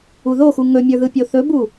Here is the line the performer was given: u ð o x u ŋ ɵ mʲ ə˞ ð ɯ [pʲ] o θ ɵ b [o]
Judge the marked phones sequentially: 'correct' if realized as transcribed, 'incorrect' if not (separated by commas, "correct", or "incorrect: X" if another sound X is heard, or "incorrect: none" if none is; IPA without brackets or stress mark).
correct, incorrect: u